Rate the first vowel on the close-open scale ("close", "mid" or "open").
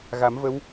open